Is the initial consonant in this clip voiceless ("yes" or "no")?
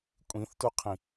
yes